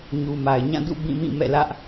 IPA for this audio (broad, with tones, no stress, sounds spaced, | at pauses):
ɲ u˨ m a˨ ɪ̯ ɲ ã˦˨ d ṵ˦˨ b ĩ˦˨ m ĩ˦˨ m ɛ̰˦˨ l ä˦ ʔ